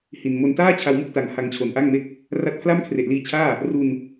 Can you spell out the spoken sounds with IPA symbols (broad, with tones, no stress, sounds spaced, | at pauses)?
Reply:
h i˨˩ n m o˧ n t aː˥˩ t͡ɕʰ a˧ w m ɯ˥˩ k̚ t a˩˦ ŋ h a˧ ŋ t͡ɕʰ o˨˩ n ʔ a˥˩ ŋ m e˥˩ k̚ | r a˦˥ t̚ pʰ l a˥˩ m kʰ r e˨˩ ʔ l iː˧ t͡ɕʰ aː˥˩ | r u˧ n